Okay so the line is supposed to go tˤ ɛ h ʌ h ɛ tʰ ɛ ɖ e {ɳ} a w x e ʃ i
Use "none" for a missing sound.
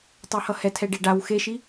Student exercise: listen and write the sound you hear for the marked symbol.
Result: ɖ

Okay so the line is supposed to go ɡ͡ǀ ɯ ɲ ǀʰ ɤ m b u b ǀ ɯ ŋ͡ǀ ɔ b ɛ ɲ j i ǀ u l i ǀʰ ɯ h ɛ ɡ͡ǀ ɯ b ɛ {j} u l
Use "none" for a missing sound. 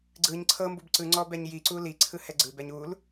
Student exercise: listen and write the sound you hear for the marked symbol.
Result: ɲ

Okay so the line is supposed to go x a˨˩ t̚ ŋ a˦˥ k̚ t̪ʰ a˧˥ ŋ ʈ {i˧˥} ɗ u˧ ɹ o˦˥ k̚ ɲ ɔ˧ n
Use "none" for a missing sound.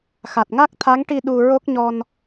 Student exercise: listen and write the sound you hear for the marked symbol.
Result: i˧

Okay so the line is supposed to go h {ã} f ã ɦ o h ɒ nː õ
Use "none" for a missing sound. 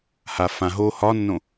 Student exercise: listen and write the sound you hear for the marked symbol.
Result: a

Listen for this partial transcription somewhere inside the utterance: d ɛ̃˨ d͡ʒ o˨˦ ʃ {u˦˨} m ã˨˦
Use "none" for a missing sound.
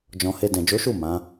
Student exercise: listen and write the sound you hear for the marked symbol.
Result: u˦˨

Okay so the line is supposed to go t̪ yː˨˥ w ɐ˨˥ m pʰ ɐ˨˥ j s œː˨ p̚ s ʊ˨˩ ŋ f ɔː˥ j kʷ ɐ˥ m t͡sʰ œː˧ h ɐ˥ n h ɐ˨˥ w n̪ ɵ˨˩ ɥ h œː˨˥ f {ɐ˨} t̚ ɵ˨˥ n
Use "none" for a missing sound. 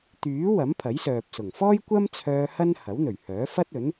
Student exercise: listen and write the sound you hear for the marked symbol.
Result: ɐ˥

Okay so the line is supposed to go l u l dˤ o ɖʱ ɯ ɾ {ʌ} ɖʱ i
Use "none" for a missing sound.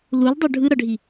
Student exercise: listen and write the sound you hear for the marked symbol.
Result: ʌ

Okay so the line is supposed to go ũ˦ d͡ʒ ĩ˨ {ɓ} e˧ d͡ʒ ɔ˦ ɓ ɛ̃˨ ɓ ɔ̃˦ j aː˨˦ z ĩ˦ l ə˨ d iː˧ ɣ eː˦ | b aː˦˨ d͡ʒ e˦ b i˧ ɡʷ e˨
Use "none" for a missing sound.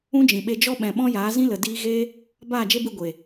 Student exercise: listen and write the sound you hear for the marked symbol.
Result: ɓ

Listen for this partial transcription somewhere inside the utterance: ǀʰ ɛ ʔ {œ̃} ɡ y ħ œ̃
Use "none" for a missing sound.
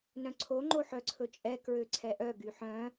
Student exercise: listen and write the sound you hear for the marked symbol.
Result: œ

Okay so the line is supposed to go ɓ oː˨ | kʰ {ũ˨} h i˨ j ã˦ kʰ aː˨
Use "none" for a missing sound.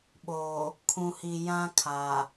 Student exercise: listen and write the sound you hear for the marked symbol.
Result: ũ˨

